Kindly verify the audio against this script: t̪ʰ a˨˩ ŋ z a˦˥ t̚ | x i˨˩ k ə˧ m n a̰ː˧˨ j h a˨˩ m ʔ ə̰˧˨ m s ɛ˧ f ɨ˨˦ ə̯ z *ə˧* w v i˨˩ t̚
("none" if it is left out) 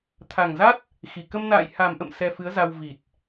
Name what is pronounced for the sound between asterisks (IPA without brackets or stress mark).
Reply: a˧